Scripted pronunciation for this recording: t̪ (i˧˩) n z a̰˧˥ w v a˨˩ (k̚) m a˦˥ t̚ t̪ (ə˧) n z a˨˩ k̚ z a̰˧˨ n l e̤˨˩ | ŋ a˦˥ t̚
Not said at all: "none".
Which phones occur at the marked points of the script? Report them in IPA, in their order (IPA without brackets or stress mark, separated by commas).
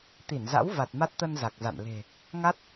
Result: i˧˩, t̚, ə˧